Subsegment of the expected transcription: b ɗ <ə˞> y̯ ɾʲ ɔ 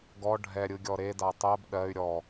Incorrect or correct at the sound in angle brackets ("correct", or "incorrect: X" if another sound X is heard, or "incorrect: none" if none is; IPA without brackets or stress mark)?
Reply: incorrect: ɜ